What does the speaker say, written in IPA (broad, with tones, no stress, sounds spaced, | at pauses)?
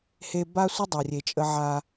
h e˦ b a˦ sʷ ə˦ dˤ o˨ rʲ e˨ t͡ʃʼ ə˦ ʕ a˦